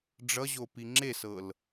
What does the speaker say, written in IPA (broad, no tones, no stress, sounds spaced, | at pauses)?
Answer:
ɖ͡ʐ ʌ ʑ o p i ŋ͡ǁ e s ɤ l